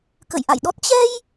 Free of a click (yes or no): yes